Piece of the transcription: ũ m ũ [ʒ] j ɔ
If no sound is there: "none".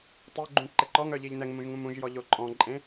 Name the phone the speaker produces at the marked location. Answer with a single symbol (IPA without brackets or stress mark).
ʒ